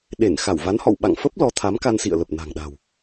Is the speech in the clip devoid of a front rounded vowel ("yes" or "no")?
yes